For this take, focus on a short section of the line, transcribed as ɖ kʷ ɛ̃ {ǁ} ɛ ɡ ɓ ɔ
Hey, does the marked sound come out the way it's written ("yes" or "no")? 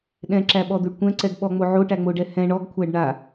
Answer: no